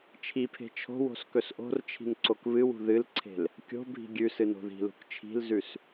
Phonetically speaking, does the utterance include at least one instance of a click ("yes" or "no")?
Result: yes